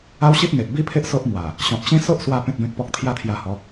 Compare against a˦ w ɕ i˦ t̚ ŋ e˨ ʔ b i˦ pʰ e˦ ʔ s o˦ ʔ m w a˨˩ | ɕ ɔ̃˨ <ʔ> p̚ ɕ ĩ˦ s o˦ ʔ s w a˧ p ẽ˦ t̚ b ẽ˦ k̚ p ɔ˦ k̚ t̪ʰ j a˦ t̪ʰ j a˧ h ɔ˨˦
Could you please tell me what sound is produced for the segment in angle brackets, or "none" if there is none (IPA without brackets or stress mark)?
none